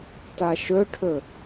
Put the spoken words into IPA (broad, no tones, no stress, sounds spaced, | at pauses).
t a ʃ ɵ ʈʰ ɵ